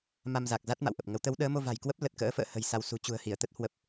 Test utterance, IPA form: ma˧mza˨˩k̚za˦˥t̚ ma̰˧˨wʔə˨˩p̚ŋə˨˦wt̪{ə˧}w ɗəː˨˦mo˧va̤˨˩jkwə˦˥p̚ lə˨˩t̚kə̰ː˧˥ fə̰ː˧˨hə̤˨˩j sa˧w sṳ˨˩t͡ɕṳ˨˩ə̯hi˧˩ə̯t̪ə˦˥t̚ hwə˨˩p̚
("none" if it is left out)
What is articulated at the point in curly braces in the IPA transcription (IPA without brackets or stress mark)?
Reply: ə˨˦